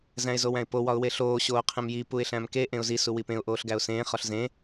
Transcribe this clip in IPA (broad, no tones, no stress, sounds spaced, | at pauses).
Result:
z æ̃ ɪ̯ z o w æ̃ ɪ̯ p o w ɒ ʊ̯ w e ɬ oː ɕ oː qʰ ẽ m j i p u ɪ̯ ɬ æ̃ m k e ʔ ẽ ʊ̯ z i s u w i p ẽ ʊ̯ ʔ oː ɬ ɡ æ ʊ̯ s ẽː χ ɒ ɬ z ẽ